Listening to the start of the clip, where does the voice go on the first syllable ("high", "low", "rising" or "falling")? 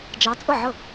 rising